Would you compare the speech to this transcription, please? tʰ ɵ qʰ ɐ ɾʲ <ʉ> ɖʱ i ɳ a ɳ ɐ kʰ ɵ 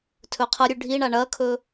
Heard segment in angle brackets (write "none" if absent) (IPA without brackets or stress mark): ʉ